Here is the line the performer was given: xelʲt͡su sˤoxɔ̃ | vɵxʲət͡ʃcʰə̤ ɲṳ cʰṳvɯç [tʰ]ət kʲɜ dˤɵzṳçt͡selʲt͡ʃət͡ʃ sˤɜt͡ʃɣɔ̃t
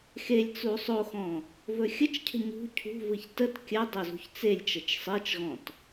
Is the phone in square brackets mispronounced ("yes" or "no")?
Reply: yes